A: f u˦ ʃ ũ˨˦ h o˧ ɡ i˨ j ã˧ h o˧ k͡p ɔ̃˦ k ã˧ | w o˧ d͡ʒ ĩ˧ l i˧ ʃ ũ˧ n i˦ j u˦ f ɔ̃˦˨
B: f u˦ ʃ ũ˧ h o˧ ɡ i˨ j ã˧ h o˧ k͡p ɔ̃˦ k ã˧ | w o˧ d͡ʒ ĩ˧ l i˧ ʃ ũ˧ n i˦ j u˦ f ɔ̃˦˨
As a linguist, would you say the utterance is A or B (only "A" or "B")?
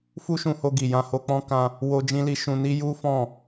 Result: B